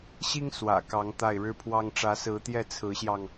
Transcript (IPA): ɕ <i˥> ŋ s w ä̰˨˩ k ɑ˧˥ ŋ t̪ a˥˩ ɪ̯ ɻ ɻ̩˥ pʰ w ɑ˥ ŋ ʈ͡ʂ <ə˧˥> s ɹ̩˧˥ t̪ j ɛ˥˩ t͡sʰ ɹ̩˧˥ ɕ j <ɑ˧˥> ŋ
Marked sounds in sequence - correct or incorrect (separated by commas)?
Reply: correct, incorrect, incorrect